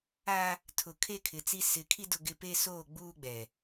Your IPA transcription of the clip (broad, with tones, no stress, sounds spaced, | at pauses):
a˦ | tʰ ʊ˨ kʰ e˦ kʰ ɪ˨ t͡s i˦ s ɪ˨˦ kʰ i˦ d ʊ˦ ɡ ɪ˦ p e˦ s oː˦˨ ɡ͡b uː˦ ɡ͡b ɛ˨